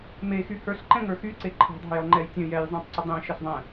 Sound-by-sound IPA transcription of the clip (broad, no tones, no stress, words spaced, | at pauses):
mexy hə˞ɬǃɛ̃ŋə˞ xyǀe ǃʰɑ̤dˤɑ̤jʌŋ͡ǃɛj tʲə̃ jɛjzˤẽtˤǀə dˤẽʃəɬðˤɛ̃